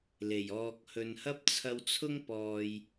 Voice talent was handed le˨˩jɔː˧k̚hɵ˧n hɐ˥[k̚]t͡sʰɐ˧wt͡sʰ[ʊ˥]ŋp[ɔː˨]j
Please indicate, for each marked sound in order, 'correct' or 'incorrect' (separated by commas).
incorrect, correct, correct